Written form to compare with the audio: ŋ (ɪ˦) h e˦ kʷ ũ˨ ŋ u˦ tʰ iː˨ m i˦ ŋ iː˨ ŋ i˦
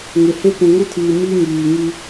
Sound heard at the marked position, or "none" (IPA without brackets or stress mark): ɪ˨